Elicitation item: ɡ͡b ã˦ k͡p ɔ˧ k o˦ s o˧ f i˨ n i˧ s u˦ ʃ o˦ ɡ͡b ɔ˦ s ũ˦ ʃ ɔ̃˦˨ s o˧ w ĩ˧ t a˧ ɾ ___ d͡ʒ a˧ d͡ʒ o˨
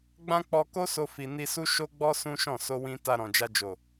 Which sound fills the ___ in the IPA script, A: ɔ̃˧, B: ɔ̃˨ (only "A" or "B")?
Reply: B